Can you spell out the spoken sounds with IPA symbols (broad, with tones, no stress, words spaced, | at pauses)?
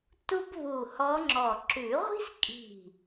tu˥b βu˧˩ hɔ˧˥ŋ͡ǁɔ˧˩ ǁʉ˨˩˦ʁʷi̤˥skʼi̤˧˩